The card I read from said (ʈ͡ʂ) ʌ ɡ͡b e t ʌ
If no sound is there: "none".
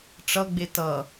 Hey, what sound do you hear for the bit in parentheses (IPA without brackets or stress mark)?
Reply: ʈ͡ʂ